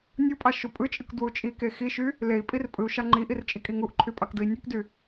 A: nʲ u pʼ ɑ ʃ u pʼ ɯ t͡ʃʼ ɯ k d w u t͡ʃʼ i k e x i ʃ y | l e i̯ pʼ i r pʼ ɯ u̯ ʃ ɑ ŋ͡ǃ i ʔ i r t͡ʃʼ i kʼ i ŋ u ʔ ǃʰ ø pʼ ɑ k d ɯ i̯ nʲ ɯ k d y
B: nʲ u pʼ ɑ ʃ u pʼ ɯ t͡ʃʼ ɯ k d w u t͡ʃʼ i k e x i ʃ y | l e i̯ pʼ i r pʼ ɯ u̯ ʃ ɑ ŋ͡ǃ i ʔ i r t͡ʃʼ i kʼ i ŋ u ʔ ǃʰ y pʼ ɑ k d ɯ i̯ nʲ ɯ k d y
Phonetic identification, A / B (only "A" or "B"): B